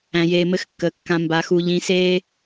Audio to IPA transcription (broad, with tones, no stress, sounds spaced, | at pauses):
æ̃˨ j eː˨ m ɘ˧ x kː əː˨ kː ã˨ m b a˨ x u˨ ʎ ĩ˨˦ s eː˦